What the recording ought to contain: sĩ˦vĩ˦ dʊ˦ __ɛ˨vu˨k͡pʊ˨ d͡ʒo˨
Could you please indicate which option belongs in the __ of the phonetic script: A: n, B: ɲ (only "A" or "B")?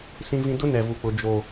A